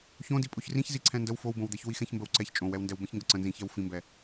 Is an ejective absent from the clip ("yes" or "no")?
no